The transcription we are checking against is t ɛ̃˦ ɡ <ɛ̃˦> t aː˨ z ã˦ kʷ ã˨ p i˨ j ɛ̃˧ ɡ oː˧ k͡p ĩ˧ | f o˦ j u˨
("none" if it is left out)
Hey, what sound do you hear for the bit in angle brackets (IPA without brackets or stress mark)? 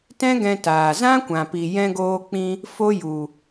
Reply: ɛ̃˧